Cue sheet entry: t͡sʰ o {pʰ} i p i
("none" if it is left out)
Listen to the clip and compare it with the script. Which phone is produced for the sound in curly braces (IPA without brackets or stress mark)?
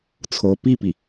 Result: p